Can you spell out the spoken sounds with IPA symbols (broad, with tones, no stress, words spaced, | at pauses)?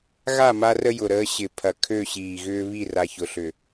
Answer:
ɣa˦˨ma˦rə˦ jʊ˨ɾəː˦ ɕɪ˨ pʰɐ˨kʰø˦˨ɕiː˨ɣʏː˦ βi˦˨ra˨çʊ˨ ɬʏ˨